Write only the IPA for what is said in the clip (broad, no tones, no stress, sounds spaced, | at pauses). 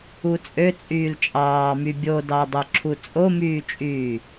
u t͡sʼ ø t͡sʼ yː l t͡ʃʼ ɑː m y bʲ o d ɑ dˤ ø ǁʰ u t͡sʼ o m yː t͡ʃʼ yː